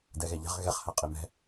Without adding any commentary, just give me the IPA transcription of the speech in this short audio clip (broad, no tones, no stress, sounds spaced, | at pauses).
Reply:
d ɛ ɣ ɛ ʎ a̤ ʁ ɣ ɛ χ h a qʼ i m ɛ̤